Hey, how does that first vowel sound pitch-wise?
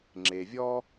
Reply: low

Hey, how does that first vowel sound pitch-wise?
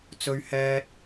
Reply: high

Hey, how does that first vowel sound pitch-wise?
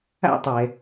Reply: high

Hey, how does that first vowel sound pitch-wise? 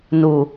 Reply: low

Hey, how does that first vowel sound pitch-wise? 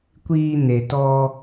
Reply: high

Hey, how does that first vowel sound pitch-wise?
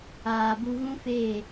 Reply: low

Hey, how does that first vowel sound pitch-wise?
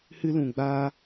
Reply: high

